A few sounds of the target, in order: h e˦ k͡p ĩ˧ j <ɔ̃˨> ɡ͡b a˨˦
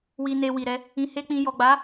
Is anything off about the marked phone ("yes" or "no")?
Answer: yes